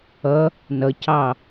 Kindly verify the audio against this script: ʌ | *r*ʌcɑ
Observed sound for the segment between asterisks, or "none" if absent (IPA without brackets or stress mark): n